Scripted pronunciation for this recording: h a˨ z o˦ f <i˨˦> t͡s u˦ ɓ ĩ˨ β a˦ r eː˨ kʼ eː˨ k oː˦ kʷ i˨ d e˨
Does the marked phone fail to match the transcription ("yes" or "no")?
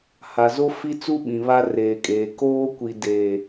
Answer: yes